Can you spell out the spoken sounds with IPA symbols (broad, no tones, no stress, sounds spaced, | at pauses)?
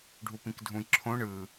ɖʱ u p ĩ k dʱ ũ j ǁʰ õ ɳ ɯ